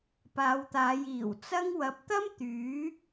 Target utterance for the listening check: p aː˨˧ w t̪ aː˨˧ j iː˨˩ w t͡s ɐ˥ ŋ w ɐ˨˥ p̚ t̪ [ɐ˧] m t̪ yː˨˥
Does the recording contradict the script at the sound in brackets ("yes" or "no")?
yes